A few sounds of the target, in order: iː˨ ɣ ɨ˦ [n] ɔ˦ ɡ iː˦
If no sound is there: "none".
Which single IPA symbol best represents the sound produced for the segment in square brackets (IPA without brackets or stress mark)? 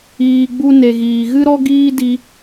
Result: ɾ